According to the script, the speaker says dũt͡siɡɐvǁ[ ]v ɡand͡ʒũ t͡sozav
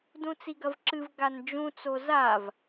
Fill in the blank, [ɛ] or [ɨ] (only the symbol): ɨ